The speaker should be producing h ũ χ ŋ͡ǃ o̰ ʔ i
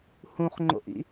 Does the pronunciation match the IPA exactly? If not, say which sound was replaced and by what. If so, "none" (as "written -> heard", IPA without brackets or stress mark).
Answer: i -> ḭ